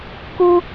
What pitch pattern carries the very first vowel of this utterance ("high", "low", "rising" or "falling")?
high